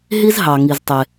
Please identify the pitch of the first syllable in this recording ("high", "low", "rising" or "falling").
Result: high